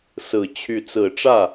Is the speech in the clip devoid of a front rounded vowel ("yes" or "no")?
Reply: no